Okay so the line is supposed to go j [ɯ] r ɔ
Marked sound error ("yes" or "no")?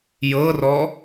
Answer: yes